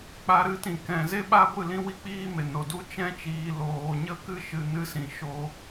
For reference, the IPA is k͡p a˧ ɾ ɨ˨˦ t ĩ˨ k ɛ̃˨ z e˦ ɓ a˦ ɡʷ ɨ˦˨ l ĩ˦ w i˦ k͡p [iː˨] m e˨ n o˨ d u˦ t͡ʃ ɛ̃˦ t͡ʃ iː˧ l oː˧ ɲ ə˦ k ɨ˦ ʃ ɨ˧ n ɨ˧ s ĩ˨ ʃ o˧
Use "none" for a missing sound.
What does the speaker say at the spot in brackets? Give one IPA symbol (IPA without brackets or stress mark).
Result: iː˦